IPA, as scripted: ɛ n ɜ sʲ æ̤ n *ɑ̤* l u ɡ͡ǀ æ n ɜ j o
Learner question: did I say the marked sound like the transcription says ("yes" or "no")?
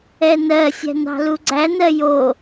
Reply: yes